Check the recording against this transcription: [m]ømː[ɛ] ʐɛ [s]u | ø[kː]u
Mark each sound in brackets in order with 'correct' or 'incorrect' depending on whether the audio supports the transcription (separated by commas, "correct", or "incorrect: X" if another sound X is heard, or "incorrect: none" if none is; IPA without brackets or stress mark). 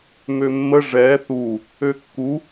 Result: correct, incorrect: ə, incorrect: θ, correct